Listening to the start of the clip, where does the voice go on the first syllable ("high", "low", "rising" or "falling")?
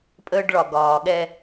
high